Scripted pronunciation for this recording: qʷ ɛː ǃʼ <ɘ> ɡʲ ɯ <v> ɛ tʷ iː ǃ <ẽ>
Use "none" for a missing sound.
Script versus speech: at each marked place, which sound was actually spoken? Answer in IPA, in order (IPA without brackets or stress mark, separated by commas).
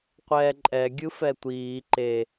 ɛ, f, e